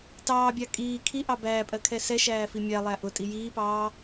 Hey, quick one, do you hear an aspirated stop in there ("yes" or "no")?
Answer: yes